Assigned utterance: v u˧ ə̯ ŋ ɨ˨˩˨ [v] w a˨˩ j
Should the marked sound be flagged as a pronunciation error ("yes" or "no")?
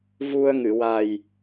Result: yes